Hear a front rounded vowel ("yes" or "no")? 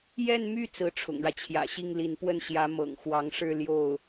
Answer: yes